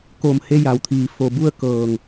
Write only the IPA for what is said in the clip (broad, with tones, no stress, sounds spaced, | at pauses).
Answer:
k o˧˩ m h e˧ j a˩ w t̪ʰ iː˩ f o˧˩ b u˥˨ ə̯ k ɤː˧˩ ŋ